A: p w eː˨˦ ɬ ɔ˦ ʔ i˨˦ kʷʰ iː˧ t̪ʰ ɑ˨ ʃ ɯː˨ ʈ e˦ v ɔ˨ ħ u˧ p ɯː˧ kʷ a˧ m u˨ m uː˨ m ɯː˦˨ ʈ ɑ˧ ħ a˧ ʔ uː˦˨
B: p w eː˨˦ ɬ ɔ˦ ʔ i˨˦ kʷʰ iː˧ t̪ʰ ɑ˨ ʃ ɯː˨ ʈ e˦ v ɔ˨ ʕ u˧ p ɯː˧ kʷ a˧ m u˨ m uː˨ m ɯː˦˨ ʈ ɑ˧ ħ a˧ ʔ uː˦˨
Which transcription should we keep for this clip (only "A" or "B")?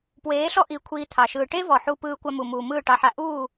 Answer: A